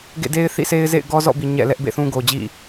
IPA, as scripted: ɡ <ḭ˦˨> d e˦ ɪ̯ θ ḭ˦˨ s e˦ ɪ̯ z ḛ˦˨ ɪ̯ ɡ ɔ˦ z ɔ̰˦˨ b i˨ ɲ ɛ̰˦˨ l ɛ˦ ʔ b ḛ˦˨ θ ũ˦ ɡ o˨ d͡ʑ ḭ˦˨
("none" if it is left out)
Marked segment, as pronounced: ḛ˦˨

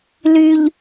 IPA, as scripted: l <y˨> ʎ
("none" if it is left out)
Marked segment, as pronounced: y˨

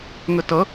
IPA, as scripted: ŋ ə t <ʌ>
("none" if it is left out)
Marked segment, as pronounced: ʌ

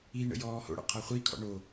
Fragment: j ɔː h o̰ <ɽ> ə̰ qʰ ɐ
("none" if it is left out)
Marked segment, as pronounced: ɽ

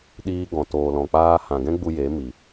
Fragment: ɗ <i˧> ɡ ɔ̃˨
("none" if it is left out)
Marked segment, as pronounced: iː˧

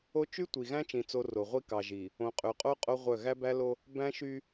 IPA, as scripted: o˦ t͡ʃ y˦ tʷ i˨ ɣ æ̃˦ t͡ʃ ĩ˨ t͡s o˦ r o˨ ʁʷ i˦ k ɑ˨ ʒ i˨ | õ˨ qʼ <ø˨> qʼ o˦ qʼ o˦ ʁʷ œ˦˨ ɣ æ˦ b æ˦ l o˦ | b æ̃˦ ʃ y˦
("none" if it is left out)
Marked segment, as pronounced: ø˨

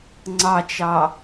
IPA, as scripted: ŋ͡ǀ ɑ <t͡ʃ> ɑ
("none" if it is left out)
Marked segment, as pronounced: t͡ʃ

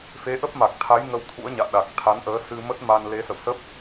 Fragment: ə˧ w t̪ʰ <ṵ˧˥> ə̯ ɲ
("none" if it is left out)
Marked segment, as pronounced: ṵ˧˥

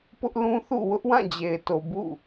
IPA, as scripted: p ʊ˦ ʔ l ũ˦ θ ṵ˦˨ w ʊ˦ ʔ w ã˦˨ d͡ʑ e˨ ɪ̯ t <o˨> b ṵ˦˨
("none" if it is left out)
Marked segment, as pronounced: o˨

